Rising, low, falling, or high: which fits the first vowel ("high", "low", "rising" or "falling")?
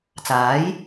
rising